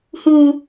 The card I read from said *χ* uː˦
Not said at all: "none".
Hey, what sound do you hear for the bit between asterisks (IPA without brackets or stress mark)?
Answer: h